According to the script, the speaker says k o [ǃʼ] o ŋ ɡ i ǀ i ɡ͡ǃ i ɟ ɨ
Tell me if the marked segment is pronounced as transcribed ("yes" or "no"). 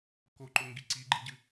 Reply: no